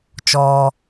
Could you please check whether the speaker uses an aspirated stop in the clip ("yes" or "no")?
no